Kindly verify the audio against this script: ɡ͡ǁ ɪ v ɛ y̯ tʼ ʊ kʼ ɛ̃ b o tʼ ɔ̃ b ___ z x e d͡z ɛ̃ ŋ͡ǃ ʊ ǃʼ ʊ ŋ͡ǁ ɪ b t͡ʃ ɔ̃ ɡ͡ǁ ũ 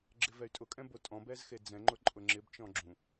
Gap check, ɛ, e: ɛ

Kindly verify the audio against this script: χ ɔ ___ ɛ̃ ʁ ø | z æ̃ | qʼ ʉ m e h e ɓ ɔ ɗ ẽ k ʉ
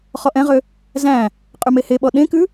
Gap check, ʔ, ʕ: ʔ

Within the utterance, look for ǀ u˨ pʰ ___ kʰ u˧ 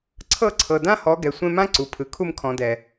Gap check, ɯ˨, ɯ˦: ɯ˨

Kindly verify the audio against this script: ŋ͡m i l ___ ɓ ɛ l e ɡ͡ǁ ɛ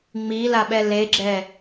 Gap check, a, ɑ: a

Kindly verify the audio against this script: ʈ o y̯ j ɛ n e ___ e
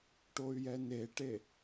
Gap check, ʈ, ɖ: ʈ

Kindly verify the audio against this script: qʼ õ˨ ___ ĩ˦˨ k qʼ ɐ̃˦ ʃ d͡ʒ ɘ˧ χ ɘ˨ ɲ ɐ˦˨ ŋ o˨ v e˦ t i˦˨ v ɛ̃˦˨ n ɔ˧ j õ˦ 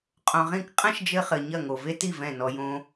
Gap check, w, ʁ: ʁ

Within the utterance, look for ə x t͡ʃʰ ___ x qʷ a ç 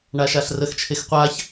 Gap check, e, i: e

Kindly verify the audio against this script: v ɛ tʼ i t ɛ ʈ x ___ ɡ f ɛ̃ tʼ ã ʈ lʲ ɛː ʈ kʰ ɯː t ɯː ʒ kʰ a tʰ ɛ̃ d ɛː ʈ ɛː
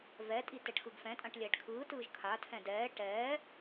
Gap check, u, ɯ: ɯ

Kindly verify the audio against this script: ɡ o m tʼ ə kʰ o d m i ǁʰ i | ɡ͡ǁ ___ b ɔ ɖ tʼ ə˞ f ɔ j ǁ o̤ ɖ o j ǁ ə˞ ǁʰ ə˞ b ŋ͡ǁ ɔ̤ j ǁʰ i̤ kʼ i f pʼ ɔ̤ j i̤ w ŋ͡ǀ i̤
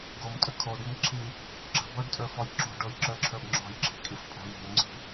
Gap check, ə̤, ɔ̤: ə̤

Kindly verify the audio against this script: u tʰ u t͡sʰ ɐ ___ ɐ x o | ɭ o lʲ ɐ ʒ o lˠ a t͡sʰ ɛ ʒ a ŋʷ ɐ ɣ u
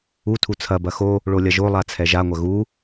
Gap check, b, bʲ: b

